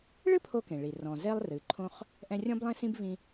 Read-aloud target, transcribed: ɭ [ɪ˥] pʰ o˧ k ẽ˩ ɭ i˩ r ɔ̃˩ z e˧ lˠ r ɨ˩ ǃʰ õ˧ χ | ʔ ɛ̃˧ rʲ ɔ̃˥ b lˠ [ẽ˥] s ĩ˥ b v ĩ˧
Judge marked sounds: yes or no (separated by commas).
no, yes